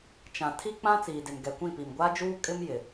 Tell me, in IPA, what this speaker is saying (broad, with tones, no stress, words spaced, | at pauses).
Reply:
t͡ʃã˨ tʰi˦ k͡pã˦ t͡siː˨dɪ˨nɡɛ˨kʷĩ˦˨ pi˨mɡʷa˦d͡ʒuː˦ kʼɪ˦mjɪ˨